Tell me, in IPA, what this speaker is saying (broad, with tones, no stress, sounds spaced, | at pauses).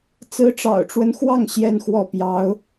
t͡s ɹ̩˧˥ ʈ͡ʂ ɑ̰˨˩ ʊ̯ ʈ͡ʂ w ə˦ n x w ɑ˥˩ ŋ ɕ j ɛ˥ n x w ɔ˥˩ p j ɑ˧˥ ʊ̯